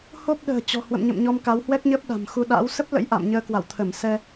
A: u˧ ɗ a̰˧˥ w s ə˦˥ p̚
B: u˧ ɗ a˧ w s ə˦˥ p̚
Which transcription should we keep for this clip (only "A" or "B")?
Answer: A